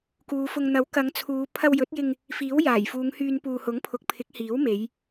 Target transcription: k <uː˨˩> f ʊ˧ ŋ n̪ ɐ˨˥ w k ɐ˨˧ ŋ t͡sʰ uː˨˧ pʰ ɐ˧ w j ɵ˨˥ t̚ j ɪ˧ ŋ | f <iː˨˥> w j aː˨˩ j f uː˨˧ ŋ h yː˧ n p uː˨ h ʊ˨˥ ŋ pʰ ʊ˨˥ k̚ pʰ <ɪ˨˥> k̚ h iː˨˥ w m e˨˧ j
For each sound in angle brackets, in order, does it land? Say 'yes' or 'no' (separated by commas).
no, yes, yes